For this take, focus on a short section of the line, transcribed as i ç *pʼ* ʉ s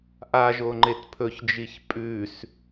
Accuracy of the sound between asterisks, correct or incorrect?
correct